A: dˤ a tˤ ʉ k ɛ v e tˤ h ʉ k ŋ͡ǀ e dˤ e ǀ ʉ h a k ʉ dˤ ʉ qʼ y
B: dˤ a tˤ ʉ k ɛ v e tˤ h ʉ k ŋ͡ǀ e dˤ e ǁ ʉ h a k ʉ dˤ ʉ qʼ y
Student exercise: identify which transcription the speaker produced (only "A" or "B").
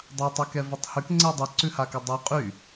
A